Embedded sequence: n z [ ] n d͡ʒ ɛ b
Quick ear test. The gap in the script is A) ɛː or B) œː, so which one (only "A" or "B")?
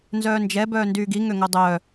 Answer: B